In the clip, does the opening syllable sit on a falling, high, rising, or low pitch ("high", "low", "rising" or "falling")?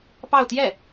falling